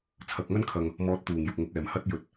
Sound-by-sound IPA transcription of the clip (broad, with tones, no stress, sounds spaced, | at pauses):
t͡sʰ ɐ˨˥ k̚ ŋ ɐ˥ n kʰ ɐ˨ ŋ | m ɔː˧ t̚ t̪ uː˨˩ ŋ j ʊ˨ k̚ ŋ ʊ˨˥ k̚ ɛː˨˩ m h ɐ˥ t̚ j ɵ˨ t̚